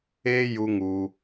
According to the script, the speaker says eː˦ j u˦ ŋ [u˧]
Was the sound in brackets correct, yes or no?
yes